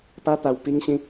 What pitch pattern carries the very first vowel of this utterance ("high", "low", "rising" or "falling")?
high